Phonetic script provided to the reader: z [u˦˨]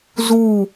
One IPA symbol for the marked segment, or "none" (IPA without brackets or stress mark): u˦˨